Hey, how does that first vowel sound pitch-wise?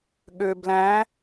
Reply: low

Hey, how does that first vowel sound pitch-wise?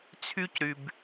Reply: high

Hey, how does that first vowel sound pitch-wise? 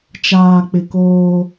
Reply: low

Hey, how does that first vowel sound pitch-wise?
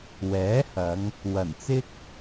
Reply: rising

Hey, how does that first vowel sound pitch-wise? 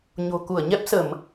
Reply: low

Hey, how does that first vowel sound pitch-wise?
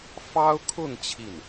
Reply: high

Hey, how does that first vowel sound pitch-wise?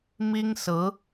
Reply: high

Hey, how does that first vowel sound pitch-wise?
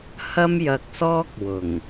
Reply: high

